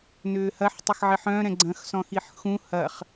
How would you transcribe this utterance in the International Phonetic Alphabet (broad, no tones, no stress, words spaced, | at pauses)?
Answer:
nʏːhɐħ tˤəxʕɪħœ̃ ɾɛ̃ɡ͡ǀɐ̃x sɔ̃xiħxũ hɐχ